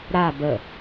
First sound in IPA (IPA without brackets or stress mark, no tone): ɾ